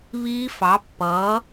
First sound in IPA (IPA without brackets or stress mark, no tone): β